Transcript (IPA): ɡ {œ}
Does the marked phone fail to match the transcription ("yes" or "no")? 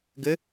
yes